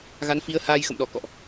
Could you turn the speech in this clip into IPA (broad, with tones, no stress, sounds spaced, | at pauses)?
ɣ a˨˦ n f i˨˦ ə̯ h aː˧ j x ə̰˧˨ m ɗ ɔ˧˩ k ɔ̰˧˨ ʔ